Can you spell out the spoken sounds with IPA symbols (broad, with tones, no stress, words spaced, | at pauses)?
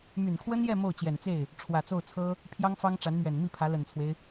my˨˩nkʰwə˥njɛ˥˧ mo˥˩ʊ̯t͡ɕjɛ˨˩nt͡se˥˩ɪ̯ | ʈ͡ʂʰwä˨˩t͡so˥˩ʊ̯t͡sʰɤ˥ | pʰjɑ˥ŋfɑ˥ŋʈ͡ʂa˧˥nmɥɛ˨˩n mi˥˩pʰä˧˥lə˨˩nt͡sʰwe˦ɪ̯